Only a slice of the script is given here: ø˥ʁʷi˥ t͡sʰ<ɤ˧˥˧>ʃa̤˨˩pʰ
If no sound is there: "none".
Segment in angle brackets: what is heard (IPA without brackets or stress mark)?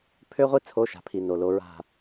o˧˥˧